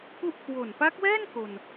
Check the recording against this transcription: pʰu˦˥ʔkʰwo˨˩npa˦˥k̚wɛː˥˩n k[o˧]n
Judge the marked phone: incorrect: o˨˩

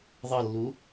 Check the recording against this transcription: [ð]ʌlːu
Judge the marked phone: incorrect: ðˤ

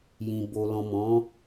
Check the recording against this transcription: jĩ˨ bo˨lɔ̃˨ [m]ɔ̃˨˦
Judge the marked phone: correct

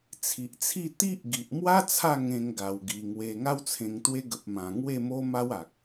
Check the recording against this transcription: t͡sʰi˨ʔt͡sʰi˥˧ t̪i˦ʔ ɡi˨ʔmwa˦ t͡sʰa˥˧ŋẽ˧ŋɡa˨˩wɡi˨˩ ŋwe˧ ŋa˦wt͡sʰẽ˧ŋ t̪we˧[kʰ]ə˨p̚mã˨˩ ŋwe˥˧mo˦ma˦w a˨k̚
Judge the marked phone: incorrect: ɡ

